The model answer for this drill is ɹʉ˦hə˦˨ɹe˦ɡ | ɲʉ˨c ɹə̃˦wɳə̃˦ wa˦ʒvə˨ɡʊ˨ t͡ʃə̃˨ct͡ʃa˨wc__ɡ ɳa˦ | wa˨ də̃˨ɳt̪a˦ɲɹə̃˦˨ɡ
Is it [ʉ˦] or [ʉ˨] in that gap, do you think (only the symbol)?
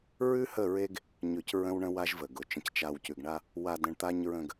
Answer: ʉ˨